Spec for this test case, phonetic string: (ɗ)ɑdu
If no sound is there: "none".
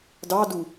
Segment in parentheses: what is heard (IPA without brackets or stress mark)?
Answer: d